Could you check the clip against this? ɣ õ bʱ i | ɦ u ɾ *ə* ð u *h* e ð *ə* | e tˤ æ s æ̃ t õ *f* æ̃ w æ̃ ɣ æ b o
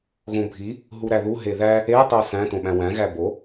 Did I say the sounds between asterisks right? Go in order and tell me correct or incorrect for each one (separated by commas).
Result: incorrect, incorrect, incorrect, incorrect